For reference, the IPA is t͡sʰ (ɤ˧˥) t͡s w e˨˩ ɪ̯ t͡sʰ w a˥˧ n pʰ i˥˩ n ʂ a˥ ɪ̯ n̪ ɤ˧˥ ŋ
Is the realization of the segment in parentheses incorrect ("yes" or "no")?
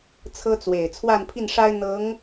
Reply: yes